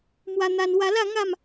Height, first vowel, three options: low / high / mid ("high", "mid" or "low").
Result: low